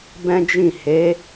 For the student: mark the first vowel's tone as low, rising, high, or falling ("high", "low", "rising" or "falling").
high